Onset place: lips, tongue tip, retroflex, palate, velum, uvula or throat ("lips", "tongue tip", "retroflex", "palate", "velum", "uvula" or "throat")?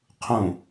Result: uvula